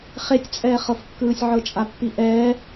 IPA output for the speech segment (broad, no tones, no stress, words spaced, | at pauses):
χetʲt͡sʼɛːχɤfkːɯːsʲ ʕɤt͡ʃʼapːiʔɛː